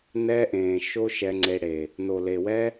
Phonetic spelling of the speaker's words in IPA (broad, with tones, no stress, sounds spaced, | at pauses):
n ɛ˦ ʔ ẽː˨ ʃ o˦ ʃ ɛ˧ ŋ͡ǀ e˧ ɽ e˨ | n o˨ l e˨ w ɛ˦